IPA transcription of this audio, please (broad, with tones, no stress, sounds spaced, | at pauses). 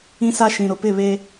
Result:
ĩ˦ s a˦ ʃ ĩ˨ ɾ ʊ˨ p ɪ˦˨ β e˦